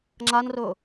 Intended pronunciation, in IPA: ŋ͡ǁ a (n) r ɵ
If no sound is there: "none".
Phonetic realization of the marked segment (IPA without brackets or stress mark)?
n